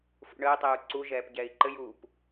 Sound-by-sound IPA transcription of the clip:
f ṵ ɳ əː tˤ əː u̯ ǀ u ʒ ɛː p ɟ ɛː i̯ ǃ ɘ j uː p

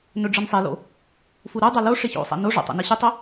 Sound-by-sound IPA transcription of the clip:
n ɵ ɖ͡ʐ ɨ n sˤ e l o̰ | f u ɾ u dˤ a l o ʂ e ç o̰ sˤ a̰ n o ʐ o̰ tˤ o̰ n i ɕ ʉ tˤ ɵ

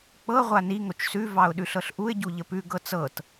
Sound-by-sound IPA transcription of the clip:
k͡p ɤ ʁʷ a n i ŋ o t͡ʃ s ʉ v ɑ ʊ̯ ɗ ʉ ɬ ɤ ɬ ʔ u ɪ̯ ɟ u ʎ ə p ʉ ɡ ɤ t͡s ɤ t

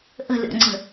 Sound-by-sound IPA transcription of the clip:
ʔ ə̤ lʲ ɔ̰ ŋ͡ǀ ə̤

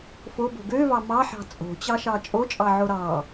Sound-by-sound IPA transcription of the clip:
f o b o̤ ɡ ø v ɑ m ɑ ħ ɑ̤ t͡sʼ o̤ t͡ɕ ɑ ʃ ɑ t͡ʃʼ o t͡ʃʼ ɑ ʕ o ɾ ɑ

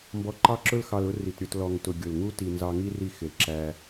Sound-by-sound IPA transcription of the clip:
m b ɔ˧ ǃ ɑ˦ ǁ ʊ˦ l x ɑ˧ l ʊ˦ r i˨ t ɾʲ ʊ˦˨ t l ɔ˨ ŋ t ʊ˨ ɡʲ ʊ˨ l ŋ u˦ t i˨ n z ɑ˧ ŋ i˦ r i˧ x ɪ˨ l ǁ æ˧

